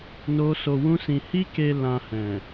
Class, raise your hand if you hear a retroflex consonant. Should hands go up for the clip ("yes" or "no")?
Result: no